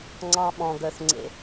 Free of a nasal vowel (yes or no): no